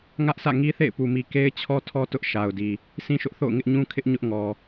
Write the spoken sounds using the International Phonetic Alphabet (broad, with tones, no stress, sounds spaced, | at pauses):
ŋ ä˦ ʔ s ä̰˦˨ ŋ i˦ θ ḛ˦˨ ɪ̯ p u˨ m i˨ k e˦ ɪ̯ t͡ɕʰ ɔ˦ tʰ ɔ˦ t ʊ˦ ʔ ʃ a˨ ʊ̯ d i˨ | sʰ ĩ˦ ʃ ʊ˦ ʔ θ o̰˦˨ ʊ̯ ŋ ɪ˦ ʔ ɲ ũ˦ kʰ ɪ˦ ʔ ɲ ʊ˦ ʔ ŋ ɔ˨